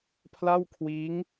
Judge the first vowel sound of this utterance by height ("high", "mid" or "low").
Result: low